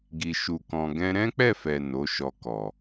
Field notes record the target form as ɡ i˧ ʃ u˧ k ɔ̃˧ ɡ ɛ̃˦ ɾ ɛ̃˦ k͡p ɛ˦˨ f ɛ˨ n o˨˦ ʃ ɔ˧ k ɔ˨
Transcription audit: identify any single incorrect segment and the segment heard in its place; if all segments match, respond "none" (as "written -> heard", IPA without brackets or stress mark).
none